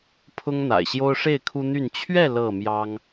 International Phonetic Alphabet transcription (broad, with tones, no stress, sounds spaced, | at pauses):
pʰ ʊ˦ ŋ n̪ a̰˨˩ ɪ̯ ɕ j o˦ ʊ̯ ʂ e˥˨ ɪ̯ kʰ u˦ n̪ y˥˨ n t͡ɕʰ ɥ ɛ˥˨ l ɤ˥˨ m j ɑ˦ ŋ